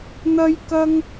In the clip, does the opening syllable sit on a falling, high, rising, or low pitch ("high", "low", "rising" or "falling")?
high